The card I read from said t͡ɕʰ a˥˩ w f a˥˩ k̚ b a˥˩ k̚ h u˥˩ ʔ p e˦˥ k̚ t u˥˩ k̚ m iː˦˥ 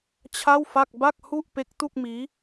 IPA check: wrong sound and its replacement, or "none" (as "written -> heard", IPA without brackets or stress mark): none